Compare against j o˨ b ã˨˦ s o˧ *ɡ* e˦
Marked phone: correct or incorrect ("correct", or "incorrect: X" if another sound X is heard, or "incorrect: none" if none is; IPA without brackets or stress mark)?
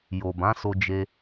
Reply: incorrect: d͡ʒ